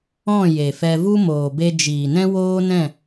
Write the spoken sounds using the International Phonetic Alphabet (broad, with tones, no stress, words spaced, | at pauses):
ɔ̃˦˨ je˨fɛ˧vu˦ moː˨be˧ d͡ʒiː˨nɛ̃˦woː˦nɛ̃˦˨